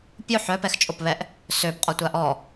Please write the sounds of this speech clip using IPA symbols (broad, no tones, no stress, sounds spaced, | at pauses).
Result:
pʲ o ħ œ p ɛ x t͡ʃʼ o p β ɛ ʔ | s ø p qʼ ɔ tʷ a ʔ ɔ